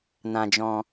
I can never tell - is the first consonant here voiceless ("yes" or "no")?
no